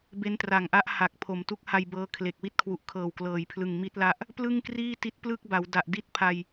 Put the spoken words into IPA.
be˦˥ntra˨˩ŋʔa˦˥ʔ ha˨˩k̚ pʰo˨˩mtu˦˥k̚ha˧jbɤː˦˥ kʰle˨˩k̚ wi˥˩t̚kʰwu˨˩ʔkʰɤː˨˩w klɤː˩˦jpʰlɯ˨˩ŋ mi˦˥t̚la˦˥ʔ | plɯ˥˩ŋkriː˥˩ti˦˥t̚ plɯ˥˩k̚ba˩˦w da˨˩ʔdi˥˩t̚pʰa˧j

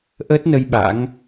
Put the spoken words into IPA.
ʔəː˦˥t̚nə˧j ɓa̰˧˥ŋ

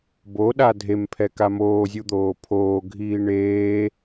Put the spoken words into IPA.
boɗa dʱempʰɛ kamoːzʲud̪oː pʰoːɡʱiː ɳeː

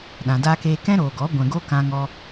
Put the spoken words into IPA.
ɗã˨daː˧keː˧ kɛ̃˦ɾoː˨ɡɔ˨˦ ɡʷɛ̃˨ɡo˧ kã˧ŋɔ˧

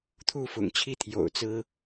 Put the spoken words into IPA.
t̪ʰu˥˨fʊ̰˨˩ŋt͡ɕʰi˦ t̪ʰjo̰˨˩ʊ̯t͡sɹ̩˦

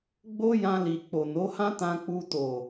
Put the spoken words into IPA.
ɡ͡bo˦jã˧li˨ k͡po˨ no˨˦hã˦tã˧k͡pu˧ to˨

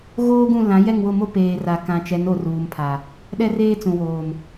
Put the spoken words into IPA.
ɣoː˦ɡũ˦˨ lã˨˦jɛ˦˨ŋwʊ˦˨ mo˦ peː˨ra˨kã˨t͡ʃɛ˨˦n o˨ruː˨mpʰa˨ | ɗɛ˦reː˦t͡sũ˨woː˨m

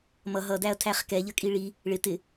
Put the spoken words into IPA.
mʌ ɦʌdæɐ̯tʰæχ kɛʎəkʼi ɭi | ɭɪ tɪ

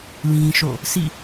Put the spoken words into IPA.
lĩ˦ʃo̰˦˨ | sḭ˦˨

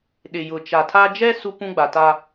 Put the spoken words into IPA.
ɗɪ˨jʊ˨ t͡ʃa˨tʰa˦ d͡ʒɛ˦ su˦pũ˦ɡ͡ba˨ ta˦

